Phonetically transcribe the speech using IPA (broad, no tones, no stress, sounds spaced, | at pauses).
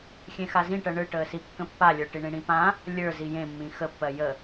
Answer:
xʲ ẽ x a z ĩ ʈ ɜ ɳ ɯ ʈ əː s i kː ə̃ pː a lʲ ə˞ ʈ i ɳ ĩ ɽ ĩ p ã | lʲ ə˞ z i j ẽ mː ĩ x ə pː ɜ j ə